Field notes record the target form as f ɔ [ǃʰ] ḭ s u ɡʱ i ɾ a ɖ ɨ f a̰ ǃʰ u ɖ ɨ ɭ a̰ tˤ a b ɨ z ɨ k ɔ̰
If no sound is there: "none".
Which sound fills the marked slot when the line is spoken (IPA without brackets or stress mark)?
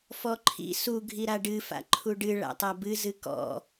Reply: ǃʰ